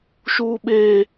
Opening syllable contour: high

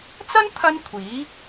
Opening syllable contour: high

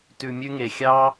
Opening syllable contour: low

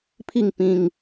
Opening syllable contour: falling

